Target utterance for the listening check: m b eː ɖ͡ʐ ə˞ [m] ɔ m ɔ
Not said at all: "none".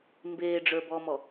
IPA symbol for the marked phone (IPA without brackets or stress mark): b